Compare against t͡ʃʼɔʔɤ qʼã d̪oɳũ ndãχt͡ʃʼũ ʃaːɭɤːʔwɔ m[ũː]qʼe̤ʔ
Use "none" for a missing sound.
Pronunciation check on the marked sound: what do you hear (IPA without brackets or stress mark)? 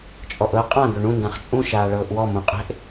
ũ